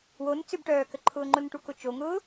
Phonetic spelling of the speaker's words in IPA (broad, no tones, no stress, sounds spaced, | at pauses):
w o n t͡s ʏ b ʈ œː k ə ǃʰ ʊː ŋ͡ǃ ʊ n ʈ u k ʊ t͡ʃ o ŋ ʊː